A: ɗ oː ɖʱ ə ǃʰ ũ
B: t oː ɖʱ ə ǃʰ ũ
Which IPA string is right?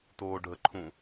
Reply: B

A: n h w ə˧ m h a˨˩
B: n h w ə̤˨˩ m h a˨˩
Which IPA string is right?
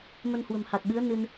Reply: B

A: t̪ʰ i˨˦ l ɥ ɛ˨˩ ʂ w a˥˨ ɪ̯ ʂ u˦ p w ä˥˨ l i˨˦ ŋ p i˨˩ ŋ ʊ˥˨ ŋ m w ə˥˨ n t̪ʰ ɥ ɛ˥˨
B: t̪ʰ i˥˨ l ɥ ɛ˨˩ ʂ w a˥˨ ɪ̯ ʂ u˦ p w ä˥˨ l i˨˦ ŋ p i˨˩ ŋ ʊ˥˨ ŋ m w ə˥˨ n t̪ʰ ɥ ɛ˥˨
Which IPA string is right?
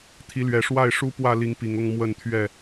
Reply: A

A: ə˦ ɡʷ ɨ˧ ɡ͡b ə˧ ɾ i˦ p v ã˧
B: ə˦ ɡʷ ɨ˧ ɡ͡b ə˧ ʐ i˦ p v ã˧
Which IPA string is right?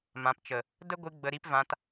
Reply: A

